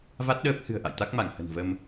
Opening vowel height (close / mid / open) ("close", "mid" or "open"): open